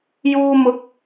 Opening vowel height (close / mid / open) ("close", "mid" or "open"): close